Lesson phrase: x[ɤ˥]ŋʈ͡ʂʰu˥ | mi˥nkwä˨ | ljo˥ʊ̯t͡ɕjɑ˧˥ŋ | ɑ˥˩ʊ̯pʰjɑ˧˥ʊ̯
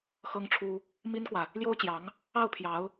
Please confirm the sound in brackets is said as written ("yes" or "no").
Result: yes